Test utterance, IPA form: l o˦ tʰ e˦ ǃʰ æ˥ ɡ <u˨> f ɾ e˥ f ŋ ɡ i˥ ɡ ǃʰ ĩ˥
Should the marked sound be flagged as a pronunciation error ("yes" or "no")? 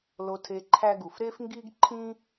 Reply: no